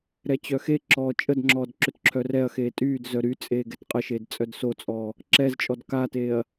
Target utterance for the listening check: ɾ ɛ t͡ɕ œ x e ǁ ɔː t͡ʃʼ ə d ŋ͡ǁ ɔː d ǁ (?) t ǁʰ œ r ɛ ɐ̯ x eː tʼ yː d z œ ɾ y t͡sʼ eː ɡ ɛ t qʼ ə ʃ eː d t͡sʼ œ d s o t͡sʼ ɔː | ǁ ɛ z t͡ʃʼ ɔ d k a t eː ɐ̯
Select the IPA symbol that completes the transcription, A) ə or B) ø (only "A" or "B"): B